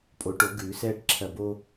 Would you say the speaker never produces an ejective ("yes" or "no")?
no